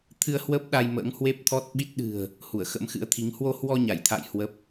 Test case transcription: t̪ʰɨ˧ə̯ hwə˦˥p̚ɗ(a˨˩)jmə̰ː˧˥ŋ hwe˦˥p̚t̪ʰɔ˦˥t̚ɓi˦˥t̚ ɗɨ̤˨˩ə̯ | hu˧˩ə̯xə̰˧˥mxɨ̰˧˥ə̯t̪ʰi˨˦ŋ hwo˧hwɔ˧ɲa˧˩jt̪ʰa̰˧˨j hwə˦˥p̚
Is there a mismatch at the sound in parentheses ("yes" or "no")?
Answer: yes